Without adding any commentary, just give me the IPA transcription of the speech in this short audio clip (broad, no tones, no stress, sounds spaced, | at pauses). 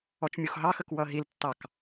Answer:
ɔ t͡ʃ mʲ u x ɦ ɑ x ə k w ʌ ɦ i l tː ɑ k